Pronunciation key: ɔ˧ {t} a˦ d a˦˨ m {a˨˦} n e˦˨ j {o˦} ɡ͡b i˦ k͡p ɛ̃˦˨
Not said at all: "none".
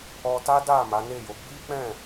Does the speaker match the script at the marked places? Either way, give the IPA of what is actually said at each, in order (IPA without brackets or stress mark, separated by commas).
t, a˨˦, o˨˦